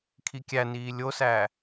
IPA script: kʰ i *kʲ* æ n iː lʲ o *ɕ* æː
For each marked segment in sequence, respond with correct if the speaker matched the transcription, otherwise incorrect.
correct, incorrect

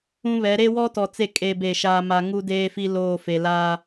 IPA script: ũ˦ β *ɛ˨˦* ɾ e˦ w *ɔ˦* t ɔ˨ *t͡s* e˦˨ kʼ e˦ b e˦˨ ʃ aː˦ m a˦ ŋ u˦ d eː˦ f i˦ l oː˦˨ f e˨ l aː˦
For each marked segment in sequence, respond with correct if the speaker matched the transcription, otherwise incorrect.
correct, correct, correct

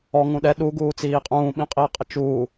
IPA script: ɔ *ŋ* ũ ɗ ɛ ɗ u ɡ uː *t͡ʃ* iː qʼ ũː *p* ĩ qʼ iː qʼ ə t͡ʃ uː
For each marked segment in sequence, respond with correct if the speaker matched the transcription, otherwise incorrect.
correct, incorrect, incorrect

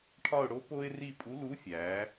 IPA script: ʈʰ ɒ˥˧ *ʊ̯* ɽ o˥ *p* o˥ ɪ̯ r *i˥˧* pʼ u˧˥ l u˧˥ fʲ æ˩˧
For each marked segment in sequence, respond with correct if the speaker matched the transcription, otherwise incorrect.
correct, correct, correct

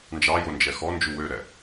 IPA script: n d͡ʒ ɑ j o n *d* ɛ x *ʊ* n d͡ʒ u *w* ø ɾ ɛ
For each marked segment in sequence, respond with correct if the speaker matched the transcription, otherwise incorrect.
incorrect, incorrect, correct

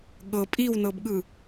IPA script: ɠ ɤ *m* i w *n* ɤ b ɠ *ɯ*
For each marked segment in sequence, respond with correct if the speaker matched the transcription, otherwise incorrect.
incorrect, correct, correct

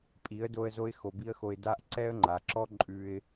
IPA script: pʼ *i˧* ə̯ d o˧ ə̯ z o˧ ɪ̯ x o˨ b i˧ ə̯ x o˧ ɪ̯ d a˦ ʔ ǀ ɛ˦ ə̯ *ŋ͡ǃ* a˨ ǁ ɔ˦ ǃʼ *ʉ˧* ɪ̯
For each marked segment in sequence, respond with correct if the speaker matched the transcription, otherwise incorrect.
incorrect, correct, correct

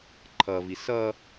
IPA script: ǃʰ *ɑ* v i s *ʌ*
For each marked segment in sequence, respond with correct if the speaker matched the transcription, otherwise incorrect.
incorrect, correct

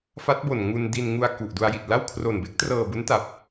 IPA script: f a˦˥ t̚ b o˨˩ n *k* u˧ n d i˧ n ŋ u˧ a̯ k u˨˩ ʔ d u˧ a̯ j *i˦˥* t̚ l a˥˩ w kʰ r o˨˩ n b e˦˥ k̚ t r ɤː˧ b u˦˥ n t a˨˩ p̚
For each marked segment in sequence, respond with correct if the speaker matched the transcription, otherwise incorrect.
incorrect, incorrect

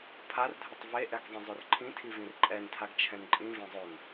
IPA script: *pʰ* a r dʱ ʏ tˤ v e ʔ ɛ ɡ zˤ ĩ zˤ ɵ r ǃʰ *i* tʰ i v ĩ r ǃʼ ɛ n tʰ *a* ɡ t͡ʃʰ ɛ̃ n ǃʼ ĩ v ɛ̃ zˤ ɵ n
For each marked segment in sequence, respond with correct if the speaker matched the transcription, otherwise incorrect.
correct, incorrect, correct

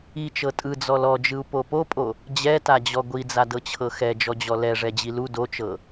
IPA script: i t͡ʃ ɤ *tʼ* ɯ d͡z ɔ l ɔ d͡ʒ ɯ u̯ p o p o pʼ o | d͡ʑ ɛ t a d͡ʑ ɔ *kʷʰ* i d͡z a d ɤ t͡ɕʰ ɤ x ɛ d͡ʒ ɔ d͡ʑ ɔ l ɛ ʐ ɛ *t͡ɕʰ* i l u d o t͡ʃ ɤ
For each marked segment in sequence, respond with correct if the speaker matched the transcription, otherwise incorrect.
correct, incorrect, incorrect

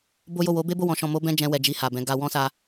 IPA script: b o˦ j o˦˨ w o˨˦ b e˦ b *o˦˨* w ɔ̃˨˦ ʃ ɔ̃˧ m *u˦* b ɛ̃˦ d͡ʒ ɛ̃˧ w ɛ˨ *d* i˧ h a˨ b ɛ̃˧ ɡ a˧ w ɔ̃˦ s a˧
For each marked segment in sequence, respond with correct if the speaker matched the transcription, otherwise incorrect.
correct, incorrect, incorrect

